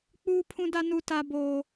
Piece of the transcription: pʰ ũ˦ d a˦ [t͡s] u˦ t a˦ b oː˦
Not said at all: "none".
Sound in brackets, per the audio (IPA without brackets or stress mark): n